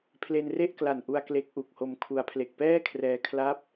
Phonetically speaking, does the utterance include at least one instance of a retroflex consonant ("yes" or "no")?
no